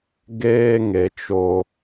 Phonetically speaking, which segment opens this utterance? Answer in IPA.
ɡ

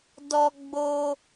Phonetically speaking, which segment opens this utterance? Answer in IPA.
d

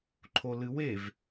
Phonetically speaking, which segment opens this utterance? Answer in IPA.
ǃʰ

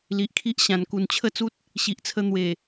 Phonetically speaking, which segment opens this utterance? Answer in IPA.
l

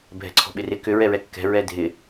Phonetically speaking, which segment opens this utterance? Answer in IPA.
bʱ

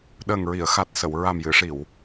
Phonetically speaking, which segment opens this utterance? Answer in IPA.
ɗ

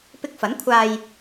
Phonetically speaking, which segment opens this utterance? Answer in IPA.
p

